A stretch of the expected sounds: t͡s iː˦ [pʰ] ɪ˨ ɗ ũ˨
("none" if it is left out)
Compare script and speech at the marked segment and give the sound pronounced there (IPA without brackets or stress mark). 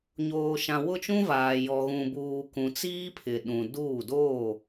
pʰ